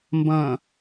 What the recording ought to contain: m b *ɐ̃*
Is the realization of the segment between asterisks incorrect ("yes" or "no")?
no